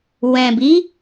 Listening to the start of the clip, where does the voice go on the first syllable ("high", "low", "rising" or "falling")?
low